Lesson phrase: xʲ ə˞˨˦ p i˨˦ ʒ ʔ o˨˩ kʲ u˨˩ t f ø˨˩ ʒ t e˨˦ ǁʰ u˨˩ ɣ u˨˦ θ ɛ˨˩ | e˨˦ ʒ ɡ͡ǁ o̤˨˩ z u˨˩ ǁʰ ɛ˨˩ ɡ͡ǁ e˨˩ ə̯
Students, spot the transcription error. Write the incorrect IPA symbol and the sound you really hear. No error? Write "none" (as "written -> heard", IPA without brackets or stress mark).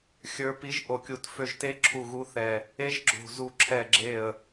none